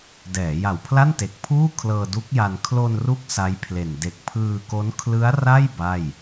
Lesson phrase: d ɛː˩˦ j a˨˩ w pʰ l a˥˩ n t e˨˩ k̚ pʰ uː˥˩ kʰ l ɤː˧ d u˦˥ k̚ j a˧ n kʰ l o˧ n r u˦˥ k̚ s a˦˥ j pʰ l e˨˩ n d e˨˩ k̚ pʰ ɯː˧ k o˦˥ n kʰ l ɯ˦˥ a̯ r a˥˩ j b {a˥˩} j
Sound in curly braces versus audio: correct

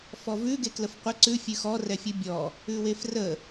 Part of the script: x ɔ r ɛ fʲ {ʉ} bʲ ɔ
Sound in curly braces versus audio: correct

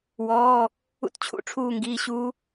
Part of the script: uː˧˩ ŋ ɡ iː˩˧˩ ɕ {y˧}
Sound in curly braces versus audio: incorrect: u˧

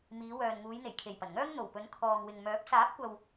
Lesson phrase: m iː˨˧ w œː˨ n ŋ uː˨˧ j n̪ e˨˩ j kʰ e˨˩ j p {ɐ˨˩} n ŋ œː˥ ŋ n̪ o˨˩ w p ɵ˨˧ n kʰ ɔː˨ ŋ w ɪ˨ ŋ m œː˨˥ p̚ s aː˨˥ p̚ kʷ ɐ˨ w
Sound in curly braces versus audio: correct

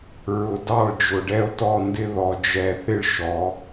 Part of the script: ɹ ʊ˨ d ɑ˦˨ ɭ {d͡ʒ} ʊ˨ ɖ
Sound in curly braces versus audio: correct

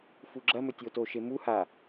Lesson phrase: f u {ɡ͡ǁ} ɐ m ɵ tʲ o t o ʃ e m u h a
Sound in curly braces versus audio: correct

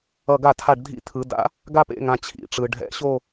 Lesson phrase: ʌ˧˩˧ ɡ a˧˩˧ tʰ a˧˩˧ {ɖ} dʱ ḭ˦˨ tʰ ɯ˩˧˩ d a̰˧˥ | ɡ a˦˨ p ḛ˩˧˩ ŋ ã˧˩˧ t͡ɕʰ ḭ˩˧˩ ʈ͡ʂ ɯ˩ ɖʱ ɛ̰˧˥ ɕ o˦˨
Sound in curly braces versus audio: correct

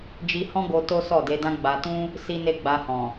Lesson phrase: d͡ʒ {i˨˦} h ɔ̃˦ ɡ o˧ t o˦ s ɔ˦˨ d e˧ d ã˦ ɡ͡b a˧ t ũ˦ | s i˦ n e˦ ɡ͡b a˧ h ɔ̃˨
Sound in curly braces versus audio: incorrect: i˧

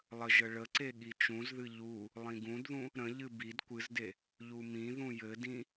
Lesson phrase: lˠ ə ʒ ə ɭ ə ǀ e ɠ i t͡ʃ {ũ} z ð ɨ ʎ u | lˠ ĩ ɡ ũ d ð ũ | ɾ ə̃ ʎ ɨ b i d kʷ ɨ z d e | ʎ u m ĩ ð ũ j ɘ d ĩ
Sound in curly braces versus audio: correct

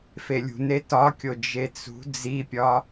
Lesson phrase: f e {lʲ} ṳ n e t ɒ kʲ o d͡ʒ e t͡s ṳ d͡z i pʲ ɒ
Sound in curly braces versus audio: correct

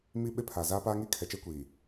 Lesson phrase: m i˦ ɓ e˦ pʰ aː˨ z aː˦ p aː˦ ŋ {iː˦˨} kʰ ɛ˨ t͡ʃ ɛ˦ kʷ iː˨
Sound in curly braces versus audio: incorrect: iː˦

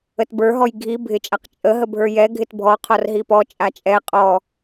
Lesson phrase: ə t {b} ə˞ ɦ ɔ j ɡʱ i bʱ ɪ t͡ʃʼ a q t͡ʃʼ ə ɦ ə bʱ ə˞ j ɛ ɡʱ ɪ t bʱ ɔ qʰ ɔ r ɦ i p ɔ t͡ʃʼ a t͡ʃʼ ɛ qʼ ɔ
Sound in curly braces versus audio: correct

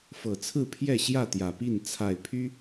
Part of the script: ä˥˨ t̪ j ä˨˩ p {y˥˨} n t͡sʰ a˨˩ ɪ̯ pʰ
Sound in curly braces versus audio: incorrect: i˥˨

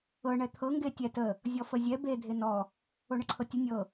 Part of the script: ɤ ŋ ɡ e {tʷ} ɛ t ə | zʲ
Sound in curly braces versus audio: incorrect: tʲ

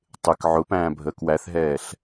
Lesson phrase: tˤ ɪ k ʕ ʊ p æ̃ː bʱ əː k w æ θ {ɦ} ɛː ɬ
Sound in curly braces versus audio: correct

